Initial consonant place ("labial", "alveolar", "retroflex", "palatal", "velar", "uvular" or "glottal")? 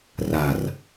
alveolar